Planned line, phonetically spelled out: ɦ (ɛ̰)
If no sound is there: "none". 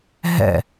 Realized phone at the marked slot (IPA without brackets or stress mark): ɛ̰